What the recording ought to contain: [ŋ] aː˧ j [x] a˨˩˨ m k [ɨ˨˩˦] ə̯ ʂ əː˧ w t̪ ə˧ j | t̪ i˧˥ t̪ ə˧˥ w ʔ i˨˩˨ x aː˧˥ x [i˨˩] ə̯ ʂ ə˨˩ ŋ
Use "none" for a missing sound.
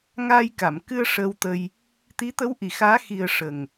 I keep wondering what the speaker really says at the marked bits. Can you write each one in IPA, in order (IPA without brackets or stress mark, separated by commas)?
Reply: ŋ, k, ɨ˧, i˨˩